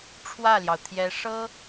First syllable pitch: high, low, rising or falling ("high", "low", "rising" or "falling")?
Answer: falling